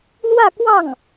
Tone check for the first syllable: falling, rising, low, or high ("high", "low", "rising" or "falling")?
falling